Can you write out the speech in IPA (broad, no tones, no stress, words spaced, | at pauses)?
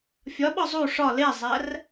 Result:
fʲɒɓɒ zˤu ʂɒ lezˤær